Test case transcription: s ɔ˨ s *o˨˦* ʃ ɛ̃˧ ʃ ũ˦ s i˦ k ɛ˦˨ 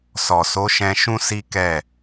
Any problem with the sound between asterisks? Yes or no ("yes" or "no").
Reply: no